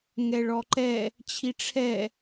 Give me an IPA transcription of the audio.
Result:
ŋ ɛ ɭ ɔ ǃ ɛ | t͡ɕʰ i ʈ͡ʂʰ ɛ

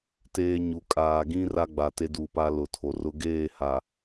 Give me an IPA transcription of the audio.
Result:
t eː˦ ɲ u˨ kʼ aː˨ ɡ ĩ˦ r a˦ ɡ͡b a˨ t e˦ d uː˨ p a˦ l ʊ˨ tʰ o˨ r ʊ˦ ɡ eː˦˨ h a˨

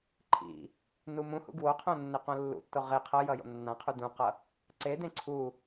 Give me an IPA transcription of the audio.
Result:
ǃʰ ḭ | n u m ũ h ṵ ɡ w o qʰ õ nː e q õ lː ṵ tː o ʁ e qʰ ʌ j ʌ j o̰ nː ã qʰ u d ũ q ʌ | ǀ e d ẽ ǀʰ u

